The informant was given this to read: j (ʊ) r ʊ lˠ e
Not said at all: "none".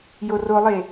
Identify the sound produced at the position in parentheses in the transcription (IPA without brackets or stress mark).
ʊ